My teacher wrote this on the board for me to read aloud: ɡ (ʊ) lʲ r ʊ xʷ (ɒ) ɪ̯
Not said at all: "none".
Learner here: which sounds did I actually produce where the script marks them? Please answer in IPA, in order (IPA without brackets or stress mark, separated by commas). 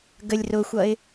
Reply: ə, ʌ